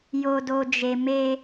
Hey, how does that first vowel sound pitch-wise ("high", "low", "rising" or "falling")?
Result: low